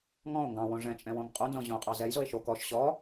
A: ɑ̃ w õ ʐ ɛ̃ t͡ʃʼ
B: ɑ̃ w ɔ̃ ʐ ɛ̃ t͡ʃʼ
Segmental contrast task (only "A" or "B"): A